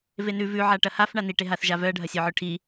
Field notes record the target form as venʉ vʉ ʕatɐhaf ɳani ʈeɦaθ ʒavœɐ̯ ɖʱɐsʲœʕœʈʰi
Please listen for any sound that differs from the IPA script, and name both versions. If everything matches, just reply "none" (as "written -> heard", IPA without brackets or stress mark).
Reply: t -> ʈ